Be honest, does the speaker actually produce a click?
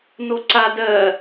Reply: yes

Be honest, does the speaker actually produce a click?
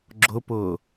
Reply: yes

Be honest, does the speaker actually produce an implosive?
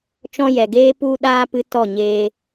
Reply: yes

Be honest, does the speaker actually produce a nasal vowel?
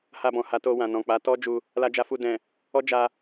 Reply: yes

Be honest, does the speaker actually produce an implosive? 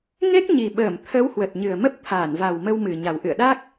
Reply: yes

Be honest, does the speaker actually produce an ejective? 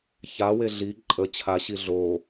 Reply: yes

